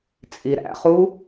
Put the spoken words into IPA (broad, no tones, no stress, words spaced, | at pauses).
t͡sʼiɾæ̰χu